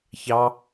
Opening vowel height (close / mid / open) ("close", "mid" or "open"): open